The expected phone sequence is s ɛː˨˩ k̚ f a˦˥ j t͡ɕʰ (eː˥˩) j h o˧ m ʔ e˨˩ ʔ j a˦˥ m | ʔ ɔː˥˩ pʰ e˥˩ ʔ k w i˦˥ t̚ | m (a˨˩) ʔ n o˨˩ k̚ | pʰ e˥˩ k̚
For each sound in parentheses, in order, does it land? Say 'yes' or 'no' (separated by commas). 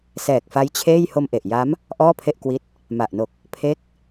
yes, yes